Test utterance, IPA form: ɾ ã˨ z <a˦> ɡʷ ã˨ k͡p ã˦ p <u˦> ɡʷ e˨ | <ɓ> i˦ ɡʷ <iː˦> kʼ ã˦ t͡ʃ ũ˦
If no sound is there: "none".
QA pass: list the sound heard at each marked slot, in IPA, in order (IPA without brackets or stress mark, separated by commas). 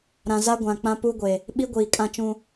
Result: a˦, u˦, ɓ, iː˨